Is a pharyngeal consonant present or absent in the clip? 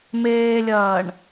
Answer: absent